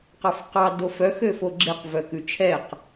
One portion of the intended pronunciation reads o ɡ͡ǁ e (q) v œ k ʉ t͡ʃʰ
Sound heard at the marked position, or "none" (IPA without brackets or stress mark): q